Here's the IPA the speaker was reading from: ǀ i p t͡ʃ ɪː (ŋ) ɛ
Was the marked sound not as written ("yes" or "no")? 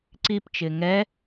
no